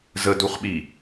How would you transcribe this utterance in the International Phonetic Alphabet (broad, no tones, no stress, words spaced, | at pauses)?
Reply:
zəduχɓi